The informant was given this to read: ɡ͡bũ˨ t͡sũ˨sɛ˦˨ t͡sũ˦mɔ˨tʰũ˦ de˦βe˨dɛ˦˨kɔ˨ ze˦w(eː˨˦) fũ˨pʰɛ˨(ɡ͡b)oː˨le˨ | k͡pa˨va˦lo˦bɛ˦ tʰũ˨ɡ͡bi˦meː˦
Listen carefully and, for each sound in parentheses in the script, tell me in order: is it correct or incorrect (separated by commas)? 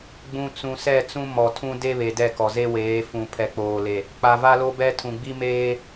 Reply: correct, incorrect